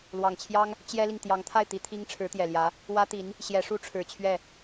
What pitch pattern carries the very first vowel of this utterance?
low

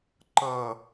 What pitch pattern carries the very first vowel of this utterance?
low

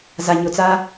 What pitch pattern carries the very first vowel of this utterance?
low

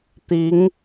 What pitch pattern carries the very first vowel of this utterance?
rising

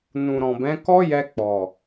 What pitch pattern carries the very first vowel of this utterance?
low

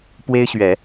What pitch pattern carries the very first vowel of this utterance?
high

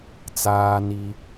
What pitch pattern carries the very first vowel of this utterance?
high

